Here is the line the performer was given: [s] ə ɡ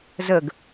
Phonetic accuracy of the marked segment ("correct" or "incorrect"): incorrect